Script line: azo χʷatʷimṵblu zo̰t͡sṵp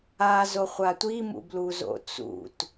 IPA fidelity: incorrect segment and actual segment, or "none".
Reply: p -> t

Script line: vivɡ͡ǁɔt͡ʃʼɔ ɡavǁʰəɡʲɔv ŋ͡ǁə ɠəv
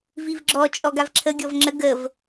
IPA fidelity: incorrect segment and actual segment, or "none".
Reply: ɠ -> ɡ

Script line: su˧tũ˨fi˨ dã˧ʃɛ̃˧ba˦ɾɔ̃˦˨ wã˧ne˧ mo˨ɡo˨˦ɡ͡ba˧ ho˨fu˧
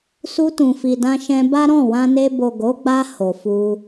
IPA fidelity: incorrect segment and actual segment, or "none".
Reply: m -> b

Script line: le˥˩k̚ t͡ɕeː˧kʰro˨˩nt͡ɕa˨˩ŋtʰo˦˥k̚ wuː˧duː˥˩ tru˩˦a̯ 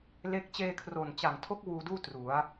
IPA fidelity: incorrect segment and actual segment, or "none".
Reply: none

